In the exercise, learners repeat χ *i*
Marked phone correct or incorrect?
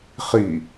correct